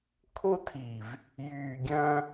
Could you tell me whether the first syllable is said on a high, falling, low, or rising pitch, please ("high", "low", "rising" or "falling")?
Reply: high